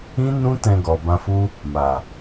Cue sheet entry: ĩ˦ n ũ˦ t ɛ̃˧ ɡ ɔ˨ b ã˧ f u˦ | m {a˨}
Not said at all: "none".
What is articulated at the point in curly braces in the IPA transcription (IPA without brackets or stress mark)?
a˨